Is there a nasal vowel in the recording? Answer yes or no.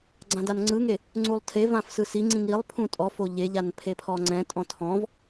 yes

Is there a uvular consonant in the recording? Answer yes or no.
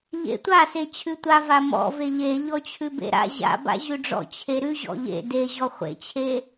yes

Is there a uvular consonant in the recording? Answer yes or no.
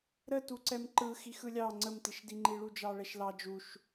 no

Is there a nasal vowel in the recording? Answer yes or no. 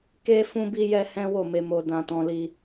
yes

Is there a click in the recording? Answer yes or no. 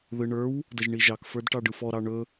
no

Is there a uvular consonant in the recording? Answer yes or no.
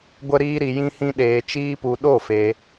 no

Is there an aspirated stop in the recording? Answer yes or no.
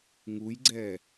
no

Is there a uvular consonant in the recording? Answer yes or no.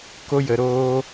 no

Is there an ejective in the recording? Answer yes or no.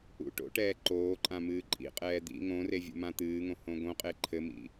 yes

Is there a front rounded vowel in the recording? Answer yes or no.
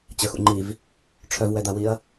yes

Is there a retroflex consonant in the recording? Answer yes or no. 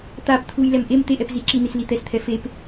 no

